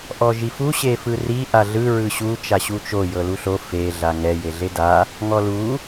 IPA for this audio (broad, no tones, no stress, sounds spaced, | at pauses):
ʔ ɔ ʒ i f u ɕ e f ɯ r i ʔ a ɮ ɯ ɹ ɯ ɕ u t͡ʃ a ɕ u t͡ʃ o j ɤ l u ɬ o f e ɮ a ŋ ɛ j e ɮ e d a | ŋ ɔ l u